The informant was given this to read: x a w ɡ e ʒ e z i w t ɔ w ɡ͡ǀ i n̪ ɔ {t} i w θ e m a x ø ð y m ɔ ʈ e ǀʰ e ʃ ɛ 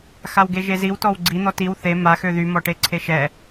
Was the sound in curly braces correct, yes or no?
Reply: yes